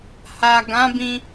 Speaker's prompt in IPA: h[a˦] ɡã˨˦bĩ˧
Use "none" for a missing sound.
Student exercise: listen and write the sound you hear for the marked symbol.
a˨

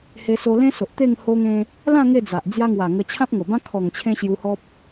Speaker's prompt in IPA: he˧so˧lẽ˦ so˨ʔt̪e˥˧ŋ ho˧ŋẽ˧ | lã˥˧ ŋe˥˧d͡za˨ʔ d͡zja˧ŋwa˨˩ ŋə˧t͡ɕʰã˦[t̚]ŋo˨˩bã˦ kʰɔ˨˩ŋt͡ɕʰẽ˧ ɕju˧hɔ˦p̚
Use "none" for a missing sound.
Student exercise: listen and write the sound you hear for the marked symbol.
p̚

